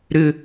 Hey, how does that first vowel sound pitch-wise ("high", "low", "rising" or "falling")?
high